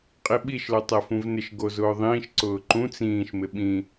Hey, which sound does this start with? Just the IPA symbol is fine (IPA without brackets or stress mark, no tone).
qʼ